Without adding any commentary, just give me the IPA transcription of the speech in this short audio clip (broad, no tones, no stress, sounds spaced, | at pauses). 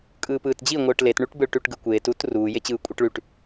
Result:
kʼ ɯː p ɯː t d͡ʑ i ŋʷ ɯː ʈ l e t ɳ y ʈ b ɯ ɭ ʈ y ʈ ɡ ɯ kʷ eː t uː t r uː j e t͡ɕ ɯː kʷʼ i ʈ ɭ y ʈ